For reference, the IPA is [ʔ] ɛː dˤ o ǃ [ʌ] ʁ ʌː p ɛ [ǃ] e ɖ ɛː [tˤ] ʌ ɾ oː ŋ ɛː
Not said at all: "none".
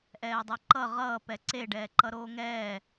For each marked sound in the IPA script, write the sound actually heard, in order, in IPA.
ʔ, ʌ, ǀ, ǃ

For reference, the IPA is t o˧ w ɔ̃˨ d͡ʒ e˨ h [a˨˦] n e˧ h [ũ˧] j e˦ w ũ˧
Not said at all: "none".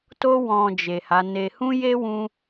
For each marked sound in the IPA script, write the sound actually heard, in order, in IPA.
a˨˦, ũ˦

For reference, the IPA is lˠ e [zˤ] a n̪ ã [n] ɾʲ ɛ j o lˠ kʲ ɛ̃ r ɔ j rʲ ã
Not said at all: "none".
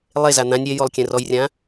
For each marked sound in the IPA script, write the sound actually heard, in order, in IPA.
z, nʲ

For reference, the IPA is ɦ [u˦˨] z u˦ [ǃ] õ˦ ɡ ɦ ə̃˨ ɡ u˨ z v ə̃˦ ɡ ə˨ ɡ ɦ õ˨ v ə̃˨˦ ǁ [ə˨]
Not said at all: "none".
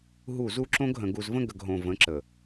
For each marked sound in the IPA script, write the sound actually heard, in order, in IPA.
u˦˨, ǁ, ə˨

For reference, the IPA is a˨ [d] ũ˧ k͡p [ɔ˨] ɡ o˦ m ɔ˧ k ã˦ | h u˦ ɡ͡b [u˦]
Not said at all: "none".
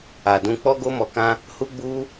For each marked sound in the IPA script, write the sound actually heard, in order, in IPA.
d, ɔ˦, u˦

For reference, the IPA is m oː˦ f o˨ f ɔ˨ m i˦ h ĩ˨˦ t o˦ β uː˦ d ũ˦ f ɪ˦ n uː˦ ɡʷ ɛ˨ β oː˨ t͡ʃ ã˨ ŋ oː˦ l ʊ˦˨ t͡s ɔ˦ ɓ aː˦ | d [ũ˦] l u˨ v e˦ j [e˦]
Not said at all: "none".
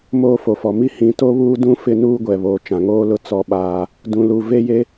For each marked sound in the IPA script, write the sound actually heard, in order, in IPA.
ũ˨, e˦

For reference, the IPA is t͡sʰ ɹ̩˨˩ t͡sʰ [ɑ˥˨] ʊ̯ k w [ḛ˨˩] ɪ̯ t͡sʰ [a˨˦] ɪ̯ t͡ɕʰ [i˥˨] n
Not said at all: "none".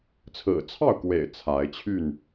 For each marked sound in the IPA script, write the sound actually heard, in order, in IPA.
ɑ˥˨, ḛ˨˩, a˨˦, y˥˨

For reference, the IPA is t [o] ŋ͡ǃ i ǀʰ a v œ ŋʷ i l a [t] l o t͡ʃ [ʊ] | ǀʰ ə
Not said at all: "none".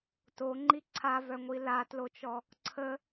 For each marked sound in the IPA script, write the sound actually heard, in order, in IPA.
o, t, ɔ

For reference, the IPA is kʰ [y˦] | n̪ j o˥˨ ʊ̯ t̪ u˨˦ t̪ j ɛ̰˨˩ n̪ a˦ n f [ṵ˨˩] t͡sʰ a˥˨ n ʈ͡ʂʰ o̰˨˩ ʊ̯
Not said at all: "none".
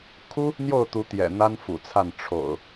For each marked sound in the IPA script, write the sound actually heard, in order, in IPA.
u˦, ṵ˨˩

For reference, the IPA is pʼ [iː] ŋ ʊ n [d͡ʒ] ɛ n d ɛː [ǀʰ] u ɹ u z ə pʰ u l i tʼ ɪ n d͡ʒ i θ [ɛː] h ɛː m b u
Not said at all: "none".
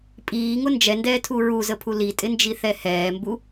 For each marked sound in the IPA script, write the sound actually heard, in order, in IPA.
iː, d͡ʒ, tʰ, ɛ

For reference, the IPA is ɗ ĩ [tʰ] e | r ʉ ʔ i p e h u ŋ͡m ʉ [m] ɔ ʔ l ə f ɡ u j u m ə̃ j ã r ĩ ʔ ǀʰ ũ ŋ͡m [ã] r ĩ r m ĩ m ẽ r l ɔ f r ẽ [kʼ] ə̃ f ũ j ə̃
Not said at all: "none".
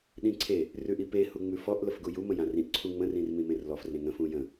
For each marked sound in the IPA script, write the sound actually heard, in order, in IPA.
ǀʰ, f, ə̃, ŋ

